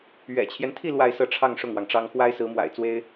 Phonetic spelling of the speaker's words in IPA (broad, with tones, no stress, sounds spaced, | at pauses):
ɥ ɛ̰˨˩ t͡ɕʰ j ɛ˦ n t̪ʰ i˥˧ l w a˥˧ ɪ̯ s ɤ˥˧ ʈ͡ʂʰ ɑ˥˧ ŋ ʂ ʊ˥˩ ŋ w ɑ˩ ŋ ʈ͡ʂ ɑ˥ ŋ x w a˥ ɪ̯ s ɹ̩˧˥ m w a̰˨˩ ɪ̯ t͡s w e˥ ɪ̯